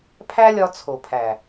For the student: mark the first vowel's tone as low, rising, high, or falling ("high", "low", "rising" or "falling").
high